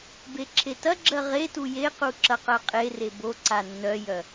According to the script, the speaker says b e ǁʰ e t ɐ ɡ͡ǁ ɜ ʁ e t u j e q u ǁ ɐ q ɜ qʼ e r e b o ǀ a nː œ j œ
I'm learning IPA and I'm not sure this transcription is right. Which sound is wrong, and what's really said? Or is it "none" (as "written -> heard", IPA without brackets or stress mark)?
none